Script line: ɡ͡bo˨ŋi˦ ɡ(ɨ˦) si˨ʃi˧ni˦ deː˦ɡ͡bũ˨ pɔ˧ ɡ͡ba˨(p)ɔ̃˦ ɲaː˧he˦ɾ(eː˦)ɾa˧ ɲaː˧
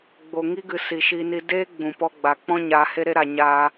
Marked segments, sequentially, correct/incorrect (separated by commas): incorrect, incorrect, incorrect